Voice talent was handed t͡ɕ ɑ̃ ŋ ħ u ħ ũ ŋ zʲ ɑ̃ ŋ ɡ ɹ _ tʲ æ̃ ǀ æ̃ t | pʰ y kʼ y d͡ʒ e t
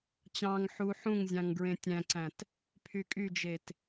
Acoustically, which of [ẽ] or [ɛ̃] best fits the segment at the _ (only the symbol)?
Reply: ẽ